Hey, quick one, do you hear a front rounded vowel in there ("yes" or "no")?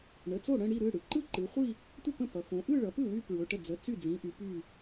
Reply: yes